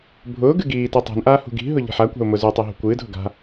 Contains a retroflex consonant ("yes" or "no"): no